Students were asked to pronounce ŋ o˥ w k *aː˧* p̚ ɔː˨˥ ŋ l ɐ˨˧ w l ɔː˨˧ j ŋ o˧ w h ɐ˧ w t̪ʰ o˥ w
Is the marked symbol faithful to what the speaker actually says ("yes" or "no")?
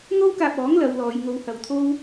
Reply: yes